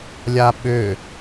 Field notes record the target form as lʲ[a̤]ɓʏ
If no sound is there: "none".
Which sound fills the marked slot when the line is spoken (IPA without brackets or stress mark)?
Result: a